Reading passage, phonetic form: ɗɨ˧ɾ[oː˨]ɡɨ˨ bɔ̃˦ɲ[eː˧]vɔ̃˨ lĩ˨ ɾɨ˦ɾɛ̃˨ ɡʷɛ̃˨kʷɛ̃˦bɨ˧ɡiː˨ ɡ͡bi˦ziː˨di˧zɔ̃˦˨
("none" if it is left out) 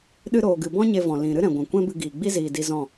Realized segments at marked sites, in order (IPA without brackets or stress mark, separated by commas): oː˨, e˧